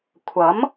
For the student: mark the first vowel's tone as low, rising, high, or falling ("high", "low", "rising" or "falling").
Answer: rising